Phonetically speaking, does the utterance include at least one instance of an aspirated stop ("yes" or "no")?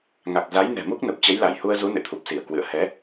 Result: yes